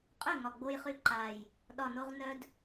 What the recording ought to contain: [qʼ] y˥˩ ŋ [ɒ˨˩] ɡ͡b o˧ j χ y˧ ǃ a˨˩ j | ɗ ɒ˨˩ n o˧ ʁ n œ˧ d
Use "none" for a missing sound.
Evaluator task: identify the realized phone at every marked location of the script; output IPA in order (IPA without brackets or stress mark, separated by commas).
qʼ, ɒ˨˩